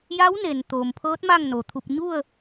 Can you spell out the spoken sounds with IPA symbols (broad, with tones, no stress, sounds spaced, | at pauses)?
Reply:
j a˧˥ w n e˩ n t̪ oː˩ m pʰ ɤː˧˥ t̚ m a˥˨ ŋ n o˩ t̪ʰ u˧ p̚ ɲ u˥˨ ə̯